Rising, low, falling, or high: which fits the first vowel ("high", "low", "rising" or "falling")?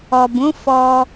low